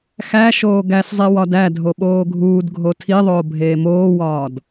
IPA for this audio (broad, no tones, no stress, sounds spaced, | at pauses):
x æ ʃ oː ɡ æ s zˤ i w ɒ d æ dʱ o ɓ oː ɡʱ uː d ɡʱ o tʰ i ðˤ oː bʱ eː m oː w ɒː d